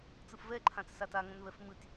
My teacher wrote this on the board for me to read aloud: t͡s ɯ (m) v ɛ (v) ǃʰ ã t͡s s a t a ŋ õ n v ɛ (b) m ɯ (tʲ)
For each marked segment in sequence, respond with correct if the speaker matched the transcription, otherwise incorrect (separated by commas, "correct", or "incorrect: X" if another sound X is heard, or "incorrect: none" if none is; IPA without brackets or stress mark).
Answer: incorrect: f, incorrect: none, incorrect: f, correct